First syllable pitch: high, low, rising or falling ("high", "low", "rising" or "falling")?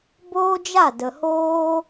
high